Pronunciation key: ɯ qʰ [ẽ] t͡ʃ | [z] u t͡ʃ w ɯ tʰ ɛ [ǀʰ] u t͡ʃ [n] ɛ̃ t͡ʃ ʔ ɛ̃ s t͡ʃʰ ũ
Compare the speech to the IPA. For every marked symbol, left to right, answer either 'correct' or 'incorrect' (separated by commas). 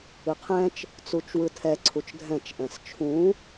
incorrect, incorrect, correct, incorrect